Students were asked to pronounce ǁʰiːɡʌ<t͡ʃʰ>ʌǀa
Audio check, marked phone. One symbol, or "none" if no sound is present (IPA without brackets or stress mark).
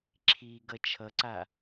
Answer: t͡ʃʰ